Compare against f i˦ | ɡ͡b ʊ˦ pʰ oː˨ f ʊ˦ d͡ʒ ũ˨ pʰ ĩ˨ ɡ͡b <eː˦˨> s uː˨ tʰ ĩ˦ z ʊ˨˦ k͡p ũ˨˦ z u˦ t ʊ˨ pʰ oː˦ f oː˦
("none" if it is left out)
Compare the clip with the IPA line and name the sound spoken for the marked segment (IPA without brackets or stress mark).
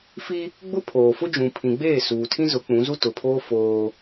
eː˦˨